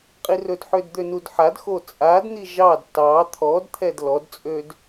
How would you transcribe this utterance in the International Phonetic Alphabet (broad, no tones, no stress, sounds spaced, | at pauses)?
qʼ i r ɵ d ħ ø d d̪ ø n u d ħ a d x o t͡sʼ a d n̪ i ʒ ɑ d t ɑ t̪ʰ ɔ d t̪ʰ ɛ d l ɔ d t͡sʼ ø d